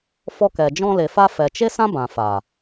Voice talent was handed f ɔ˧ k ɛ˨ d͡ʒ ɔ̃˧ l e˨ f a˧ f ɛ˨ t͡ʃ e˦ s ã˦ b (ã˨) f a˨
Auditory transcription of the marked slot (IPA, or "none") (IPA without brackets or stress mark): ã˨